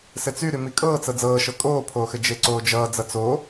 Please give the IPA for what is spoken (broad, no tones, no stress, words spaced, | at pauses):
sɘt͡sy ɾymikʼɤːt͡sɤ d͡zɤːʃɤ kʼoːpʰoːxɘ d͡ʒeǀoːd͡ʒʌː d͡zʌt͡so